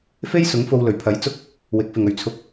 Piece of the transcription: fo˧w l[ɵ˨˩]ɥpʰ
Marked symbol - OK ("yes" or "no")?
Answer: yes